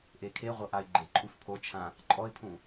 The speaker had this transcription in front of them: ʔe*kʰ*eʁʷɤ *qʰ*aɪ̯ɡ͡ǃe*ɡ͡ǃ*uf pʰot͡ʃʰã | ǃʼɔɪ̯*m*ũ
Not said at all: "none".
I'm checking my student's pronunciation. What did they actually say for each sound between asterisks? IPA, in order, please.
kʰ, ʔ, ǃʼ, pʰ

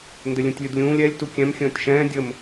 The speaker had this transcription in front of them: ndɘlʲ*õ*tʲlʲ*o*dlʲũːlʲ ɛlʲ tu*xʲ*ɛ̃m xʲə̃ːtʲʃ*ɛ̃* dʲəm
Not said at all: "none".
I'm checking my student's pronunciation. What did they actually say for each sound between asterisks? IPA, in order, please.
ũ, u, kʲ, ɛ̃ː

